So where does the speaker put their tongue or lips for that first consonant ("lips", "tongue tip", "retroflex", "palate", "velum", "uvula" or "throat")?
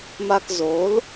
lips